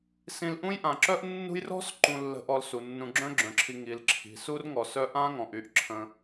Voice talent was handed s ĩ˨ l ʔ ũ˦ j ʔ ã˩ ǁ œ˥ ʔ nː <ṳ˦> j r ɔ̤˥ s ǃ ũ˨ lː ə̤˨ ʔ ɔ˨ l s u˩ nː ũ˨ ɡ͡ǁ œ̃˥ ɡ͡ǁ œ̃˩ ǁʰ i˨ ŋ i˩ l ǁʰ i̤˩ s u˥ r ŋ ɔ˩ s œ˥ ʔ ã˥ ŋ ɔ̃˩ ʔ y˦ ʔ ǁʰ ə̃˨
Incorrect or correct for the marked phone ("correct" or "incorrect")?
correct